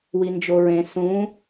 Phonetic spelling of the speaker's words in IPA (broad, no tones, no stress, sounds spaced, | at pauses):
w i n d͡ʒ o ɹ ẽ s ũ